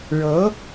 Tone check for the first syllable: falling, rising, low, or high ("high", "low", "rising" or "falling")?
rising